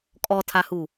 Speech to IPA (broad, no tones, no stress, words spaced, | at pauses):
kʼɔtʰahu